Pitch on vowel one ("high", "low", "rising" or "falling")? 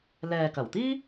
low